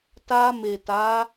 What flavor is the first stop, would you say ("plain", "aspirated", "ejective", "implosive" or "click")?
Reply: plain